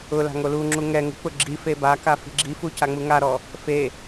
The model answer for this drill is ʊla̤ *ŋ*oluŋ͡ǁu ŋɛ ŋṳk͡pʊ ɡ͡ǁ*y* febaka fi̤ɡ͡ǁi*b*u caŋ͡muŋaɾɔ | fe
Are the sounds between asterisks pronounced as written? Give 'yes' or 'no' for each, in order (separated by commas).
yes, no, no